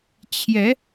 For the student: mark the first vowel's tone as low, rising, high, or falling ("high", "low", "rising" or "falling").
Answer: rising